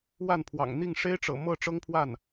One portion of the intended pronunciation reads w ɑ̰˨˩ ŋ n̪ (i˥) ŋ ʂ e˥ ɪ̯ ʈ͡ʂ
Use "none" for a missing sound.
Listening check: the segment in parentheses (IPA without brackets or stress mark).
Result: i˥˩